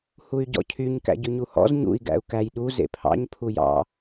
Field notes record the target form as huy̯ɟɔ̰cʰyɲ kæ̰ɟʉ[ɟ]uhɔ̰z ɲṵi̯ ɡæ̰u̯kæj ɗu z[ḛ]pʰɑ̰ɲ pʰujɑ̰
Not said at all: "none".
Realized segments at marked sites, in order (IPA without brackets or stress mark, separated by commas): ɲ, ḛ